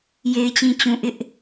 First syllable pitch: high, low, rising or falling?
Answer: low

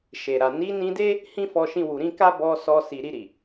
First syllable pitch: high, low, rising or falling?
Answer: low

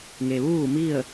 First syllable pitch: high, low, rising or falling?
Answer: low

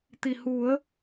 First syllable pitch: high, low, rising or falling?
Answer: low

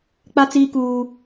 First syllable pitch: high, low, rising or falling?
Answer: high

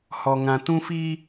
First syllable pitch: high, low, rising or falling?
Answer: low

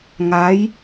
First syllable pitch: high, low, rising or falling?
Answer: rising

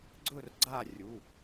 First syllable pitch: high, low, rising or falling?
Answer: falling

